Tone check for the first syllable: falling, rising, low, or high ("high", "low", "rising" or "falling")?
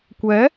rising